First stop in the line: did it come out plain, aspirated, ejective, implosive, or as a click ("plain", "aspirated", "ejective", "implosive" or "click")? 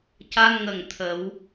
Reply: plain